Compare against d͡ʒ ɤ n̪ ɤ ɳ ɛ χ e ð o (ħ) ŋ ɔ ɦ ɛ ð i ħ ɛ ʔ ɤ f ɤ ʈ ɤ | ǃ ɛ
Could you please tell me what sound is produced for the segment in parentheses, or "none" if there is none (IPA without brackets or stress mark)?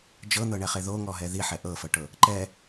none